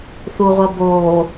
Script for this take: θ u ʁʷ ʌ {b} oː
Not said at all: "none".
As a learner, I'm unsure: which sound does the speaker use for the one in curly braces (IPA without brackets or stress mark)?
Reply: b